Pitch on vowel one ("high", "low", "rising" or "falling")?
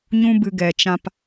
high